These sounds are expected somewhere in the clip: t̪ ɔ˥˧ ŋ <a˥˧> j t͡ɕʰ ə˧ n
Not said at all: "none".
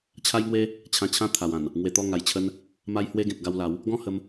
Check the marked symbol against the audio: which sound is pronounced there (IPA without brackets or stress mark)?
a˨˩